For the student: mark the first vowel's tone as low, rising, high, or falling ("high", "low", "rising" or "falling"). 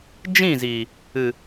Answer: falling